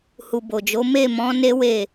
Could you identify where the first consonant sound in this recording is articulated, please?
glottal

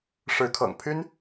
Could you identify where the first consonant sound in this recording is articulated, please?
retroflex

